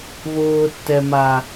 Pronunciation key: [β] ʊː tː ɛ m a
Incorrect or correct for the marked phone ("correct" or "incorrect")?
correct